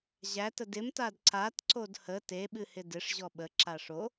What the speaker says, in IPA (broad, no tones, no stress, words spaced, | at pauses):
ʑætə dɪm tadǀatǀod hə teɓɨhɪ dɪʂʑɔ ɓə ǁaʂo